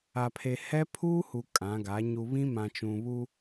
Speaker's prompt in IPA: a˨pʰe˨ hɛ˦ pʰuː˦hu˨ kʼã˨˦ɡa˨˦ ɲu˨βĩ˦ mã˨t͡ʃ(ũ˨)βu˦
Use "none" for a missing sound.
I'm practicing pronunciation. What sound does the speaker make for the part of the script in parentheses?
ũ˨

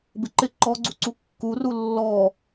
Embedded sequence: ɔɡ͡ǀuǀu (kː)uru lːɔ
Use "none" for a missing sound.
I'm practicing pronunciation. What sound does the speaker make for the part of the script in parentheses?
kː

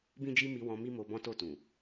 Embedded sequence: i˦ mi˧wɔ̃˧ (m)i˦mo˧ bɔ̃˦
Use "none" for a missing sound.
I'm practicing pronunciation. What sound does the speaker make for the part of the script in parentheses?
m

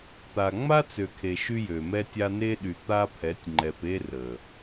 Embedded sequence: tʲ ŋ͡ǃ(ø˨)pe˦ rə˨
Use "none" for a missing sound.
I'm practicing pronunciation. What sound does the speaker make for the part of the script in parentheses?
ɛ˨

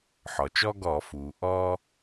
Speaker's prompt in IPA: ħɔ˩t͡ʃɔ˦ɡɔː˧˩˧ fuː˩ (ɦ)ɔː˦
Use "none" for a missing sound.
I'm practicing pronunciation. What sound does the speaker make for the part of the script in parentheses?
ʔ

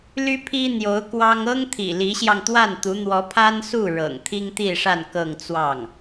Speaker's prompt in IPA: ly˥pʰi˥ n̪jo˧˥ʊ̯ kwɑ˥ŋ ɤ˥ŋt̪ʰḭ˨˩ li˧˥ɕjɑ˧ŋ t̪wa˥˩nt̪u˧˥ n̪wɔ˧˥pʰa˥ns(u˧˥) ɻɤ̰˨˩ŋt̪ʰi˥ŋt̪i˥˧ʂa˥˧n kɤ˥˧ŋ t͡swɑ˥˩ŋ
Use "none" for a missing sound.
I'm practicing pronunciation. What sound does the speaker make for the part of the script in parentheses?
u˥˩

